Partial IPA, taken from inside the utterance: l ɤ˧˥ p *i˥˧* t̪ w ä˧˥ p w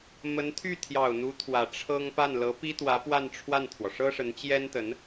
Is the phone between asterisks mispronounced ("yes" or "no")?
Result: yes